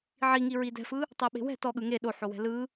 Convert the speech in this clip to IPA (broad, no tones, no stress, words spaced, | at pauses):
ʕiŋi ɹidɛ̤fɯ | tˤeɓe̤wɛ̤ tɔɠɯ ŋe ɗoħo wɛ̤lɯ